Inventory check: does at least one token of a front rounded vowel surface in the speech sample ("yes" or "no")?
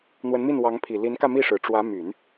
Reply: yes